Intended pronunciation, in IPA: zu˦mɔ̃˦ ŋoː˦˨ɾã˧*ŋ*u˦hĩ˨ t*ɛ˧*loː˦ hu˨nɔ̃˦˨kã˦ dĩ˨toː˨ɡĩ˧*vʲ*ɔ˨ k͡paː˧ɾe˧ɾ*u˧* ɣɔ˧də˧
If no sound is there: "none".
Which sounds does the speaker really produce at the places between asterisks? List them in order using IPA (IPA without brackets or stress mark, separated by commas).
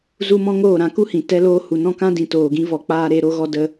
k, ɛ˦, v, o˧